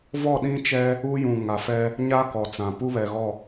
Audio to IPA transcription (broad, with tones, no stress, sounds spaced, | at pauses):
v ɔ˦˨ ɗ ĩ˦ t͡ʃ ɛ˦ | u˦ j ũ˨ ŋ a˨ f ɛ˦ | ɲ a˦ k ɔ˨ t͡s ã˨ p u˦ β ɛ˨ ɣ ɔ˦˨